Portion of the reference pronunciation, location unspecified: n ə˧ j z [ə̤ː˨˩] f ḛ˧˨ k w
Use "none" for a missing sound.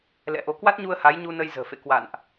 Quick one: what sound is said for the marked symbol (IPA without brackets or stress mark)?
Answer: ə̤ː˨˩